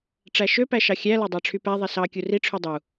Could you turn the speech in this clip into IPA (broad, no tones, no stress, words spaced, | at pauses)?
ʈ͡ʂæʃø pæʃɑxʲæ lɑdˤɑʈ͡ʂʰypæ ðˤisɑ kʲuri ʈ͡ʂʰydˤu